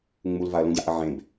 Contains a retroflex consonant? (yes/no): no